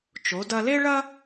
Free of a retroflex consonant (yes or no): no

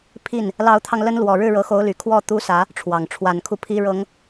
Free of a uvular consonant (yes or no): yes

